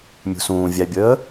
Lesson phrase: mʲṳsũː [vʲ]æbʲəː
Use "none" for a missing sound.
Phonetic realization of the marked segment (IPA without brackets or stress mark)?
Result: vʲ